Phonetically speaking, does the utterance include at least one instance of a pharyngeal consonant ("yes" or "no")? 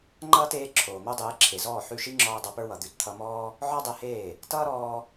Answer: yes